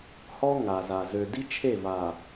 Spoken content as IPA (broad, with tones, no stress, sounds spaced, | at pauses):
h ɔ˦ ŋ a˨ z a˨ z ø˨ d i˦ t͡ʃʰ e˦˨ v a˨